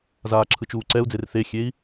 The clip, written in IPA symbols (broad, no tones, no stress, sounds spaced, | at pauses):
z aː ǁʰ ɯ t͡ʃ uː ǀ ɛ u̯ d͡z e r θ e xʲ e i̯